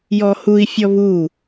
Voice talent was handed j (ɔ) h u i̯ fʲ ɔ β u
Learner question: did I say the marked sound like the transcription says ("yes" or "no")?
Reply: yes